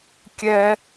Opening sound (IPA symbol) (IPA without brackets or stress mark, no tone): kʲ